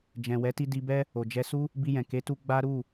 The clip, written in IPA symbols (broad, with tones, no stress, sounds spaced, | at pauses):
d͡ʒ ɛ̃˨ w ɛ˨˦ t i˧ d i˧ b ɛ˦ | o˨ d͡ʒ ɛ˧ s u˦ | b i˧ j ɛ̃˨ k e˨˦ t u˧ ɡ͡b a˦ ɾ u˦˨